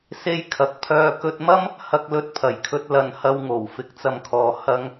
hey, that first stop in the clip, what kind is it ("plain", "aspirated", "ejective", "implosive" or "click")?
aspirated